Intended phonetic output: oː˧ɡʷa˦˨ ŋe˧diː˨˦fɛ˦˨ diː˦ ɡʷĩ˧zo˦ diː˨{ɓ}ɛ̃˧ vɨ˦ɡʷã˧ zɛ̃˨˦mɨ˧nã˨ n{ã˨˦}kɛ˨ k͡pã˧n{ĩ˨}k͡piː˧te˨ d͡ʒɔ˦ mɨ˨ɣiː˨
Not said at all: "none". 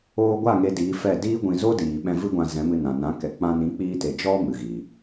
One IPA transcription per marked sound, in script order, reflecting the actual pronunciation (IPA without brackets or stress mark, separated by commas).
ɓ, ã˨˦, ĩ˨˦